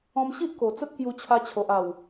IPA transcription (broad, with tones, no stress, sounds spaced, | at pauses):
ɔ̃˧ m ɕ i˦ ʔ k o˨˩ t͡s ə˦ t̚ k j u˧ t͡ɕʰ a˧ t͡ɕʰ o˨ ʔ a˨˩ w